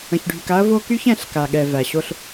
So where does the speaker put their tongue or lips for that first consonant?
palate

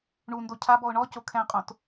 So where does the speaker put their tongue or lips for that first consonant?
retroflex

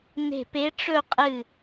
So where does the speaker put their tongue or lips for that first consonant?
tongue tip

